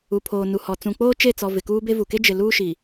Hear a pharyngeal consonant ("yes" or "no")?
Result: no